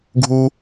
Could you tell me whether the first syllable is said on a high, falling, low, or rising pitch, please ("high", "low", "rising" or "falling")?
low